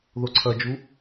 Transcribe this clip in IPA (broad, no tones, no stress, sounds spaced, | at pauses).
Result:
ð o ǀʰ ɐ d͡ʒ u